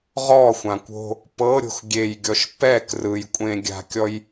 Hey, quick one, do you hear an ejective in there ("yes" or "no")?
yes